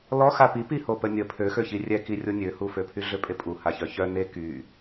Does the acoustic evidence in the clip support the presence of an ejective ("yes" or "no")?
yes